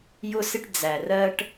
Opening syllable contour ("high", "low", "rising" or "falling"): high